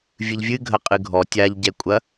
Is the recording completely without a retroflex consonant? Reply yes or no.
yes